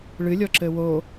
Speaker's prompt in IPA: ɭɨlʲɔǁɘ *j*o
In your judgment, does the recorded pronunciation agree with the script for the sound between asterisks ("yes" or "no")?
no